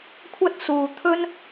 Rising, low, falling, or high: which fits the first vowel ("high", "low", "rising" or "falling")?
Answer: high